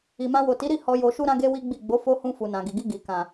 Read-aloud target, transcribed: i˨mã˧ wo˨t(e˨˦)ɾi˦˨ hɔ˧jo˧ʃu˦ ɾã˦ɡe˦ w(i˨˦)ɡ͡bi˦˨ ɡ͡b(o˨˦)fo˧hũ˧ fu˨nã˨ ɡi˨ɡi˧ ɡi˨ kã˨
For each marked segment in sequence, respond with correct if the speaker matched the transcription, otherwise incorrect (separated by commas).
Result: incorrect, incorrect, correct